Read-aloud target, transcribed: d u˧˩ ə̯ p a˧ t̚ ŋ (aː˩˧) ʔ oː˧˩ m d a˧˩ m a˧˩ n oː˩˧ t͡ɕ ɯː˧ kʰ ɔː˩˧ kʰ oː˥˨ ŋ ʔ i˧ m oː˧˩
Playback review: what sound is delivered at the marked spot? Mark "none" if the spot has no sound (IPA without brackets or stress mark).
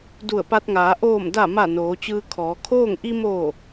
aː˩˧